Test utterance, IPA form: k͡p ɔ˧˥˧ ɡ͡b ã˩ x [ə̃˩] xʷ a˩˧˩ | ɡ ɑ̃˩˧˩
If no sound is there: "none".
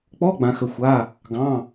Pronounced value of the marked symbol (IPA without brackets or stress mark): ə˩